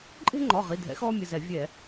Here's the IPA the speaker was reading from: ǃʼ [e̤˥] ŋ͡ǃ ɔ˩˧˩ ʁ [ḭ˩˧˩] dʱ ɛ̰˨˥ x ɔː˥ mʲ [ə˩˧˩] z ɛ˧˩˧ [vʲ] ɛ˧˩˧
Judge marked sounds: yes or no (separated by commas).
yes, no, yes, yes